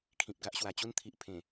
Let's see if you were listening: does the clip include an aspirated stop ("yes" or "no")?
yes